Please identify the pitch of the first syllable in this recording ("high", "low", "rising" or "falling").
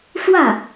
falling